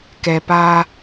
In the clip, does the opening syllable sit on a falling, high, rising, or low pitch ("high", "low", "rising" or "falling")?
low